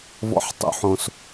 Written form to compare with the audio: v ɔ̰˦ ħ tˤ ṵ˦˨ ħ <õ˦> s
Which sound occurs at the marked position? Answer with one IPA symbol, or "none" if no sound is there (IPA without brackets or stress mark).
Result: õ˦